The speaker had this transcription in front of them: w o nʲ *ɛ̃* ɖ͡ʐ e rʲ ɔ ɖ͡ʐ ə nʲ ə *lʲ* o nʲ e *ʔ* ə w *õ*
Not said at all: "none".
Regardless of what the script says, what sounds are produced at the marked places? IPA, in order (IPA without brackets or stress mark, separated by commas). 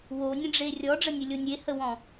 ə̃, lʲ, h, ɔ̃